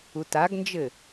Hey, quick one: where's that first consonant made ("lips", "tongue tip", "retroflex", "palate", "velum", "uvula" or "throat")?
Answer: tongue tip